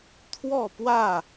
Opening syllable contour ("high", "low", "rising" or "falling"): falling